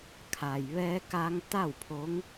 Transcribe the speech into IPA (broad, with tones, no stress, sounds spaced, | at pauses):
kʰ a˩ j ʋ ɛː˧ k a˧ ŋ t̪ a˥˨ w pʰ o˧˥ ŋ